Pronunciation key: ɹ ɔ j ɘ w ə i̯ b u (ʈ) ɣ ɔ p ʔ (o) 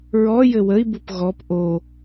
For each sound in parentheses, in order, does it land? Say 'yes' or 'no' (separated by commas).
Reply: no, yes